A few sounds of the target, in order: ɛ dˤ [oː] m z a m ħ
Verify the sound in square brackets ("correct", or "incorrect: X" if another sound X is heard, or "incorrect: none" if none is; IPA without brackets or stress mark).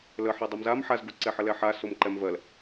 incorrect: o